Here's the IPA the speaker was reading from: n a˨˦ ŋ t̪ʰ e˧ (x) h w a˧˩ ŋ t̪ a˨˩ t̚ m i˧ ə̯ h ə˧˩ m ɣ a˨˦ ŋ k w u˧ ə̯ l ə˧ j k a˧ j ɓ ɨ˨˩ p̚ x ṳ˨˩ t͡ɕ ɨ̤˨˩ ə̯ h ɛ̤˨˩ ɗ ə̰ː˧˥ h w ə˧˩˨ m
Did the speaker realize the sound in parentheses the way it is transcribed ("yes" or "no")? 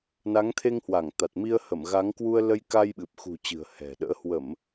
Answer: no